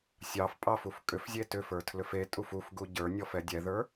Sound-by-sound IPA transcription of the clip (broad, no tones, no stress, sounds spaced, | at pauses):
sʲ ɑ f pʼ ɑ f u f kʼ ʏ f zʲ e t ʏ f ə˞ tʰ l ʏ f e tʼ u f u f ɡ u ɟ ə˞ nʲ ɔ f ɛ dʲ ɛ ð ə˞